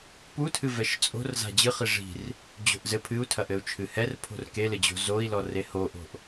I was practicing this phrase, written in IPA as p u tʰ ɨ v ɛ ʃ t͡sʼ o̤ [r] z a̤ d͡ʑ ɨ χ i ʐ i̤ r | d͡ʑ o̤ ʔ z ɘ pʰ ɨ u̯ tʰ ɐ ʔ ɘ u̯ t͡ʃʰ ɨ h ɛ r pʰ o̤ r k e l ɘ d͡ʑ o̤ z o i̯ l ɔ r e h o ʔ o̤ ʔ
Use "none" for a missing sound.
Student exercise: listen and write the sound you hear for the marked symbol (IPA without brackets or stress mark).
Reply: r